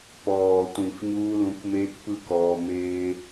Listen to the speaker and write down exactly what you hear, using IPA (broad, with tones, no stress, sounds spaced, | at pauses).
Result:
p ɔː˨ tʷ ĩ˨ f ɲ uː˧ l ũ˨˦ k m eː˧ k p ɯ˧ k ɔː˧ m eː˧